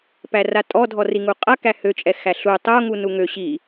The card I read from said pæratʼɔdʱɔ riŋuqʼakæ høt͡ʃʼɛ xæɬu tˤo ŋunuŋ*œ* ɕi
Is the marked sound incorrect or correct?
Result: incorrect